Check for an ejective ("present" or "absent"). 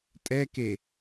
present